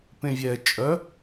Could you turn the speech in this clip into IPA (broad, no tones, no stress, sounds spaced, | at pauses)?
p ẽ vʲ ɛ t͡ʃʼ œ